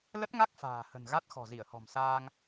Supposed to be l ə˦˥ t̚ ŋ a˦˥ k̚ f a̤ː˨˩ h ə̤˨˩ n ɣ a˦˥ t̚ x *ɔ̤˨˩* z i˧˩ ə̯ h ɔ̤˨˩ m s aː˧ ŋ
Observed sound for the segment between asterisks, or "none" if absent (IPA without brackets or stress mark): ɔ̤˨˩